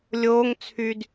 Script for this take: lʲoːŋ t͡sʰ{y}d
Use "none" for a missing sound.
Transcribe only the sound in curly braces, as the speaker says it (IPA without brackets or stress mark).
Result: y